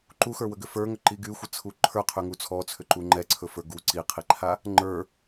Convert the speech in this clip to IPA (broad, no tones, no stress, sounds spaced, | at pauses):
ǃ u x ə˞ w ə ɡ ʏ f ə˞ ŋ ʏ ǃ i ɡ y xʷ ə t͡sʰ u ǃʰ ə˞ qʰ y ŋ u t͡sʰ ɔ t͡sʰ ʏ ǃ u ŋ͡ǃ ɛ ǀʰ ɵ f ə˞ ɡ u ǀ i qʰ i ǃʰ a | ŋ͡ǃ ə˞